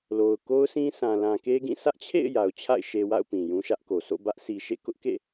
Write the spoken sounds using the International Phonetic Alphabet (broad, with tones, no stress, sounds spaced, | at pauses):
l o˨ ʊ̯ k o˦ ʊ̯ sʰ ĩ˦ sʰ ã˨ l ã˨ k e˦ ɡ ĩ˦˨ sʰ ä˦ ʔ t͡ɕʰ ḛ˦˨ ɪ̯ j a˨ ʊ̯ t͡ɕʰ a̰˦˨ ɪ̯ ʃ e˨ w a̰˦˨ ʊ̯ p ĩ˨ j ũ˦ ʃ ä˦ ʔ k o˨ s o̰˦˨ b ä˦ ʔ sʰ i˨ ʃ ḛ˦˨ k ʊ˦ ʔ k ḛ˦˨